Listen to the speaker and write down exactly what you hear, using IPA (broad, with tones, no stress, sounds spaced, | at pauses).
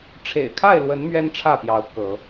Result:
ʈ͡ʂʰ ḛ˨˩ ɪ̯ kʰ a˥˨ ɪ̯ l w ə˨˦ n m ɥ ɛ˦ n ʈ͡ʂʰ ä˥˨ p j ɑ˨˦ ʊ̯ k ɤ˨˦